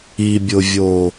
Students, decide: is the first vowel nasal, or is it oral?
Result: oral